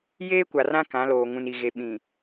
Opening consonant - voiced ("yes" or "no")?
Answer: yes